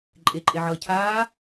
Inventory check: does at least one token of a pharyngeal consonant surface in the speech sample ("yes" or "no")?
yes